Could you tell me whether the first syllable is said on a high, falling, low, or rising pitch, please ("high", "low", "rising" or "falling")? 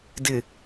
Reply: low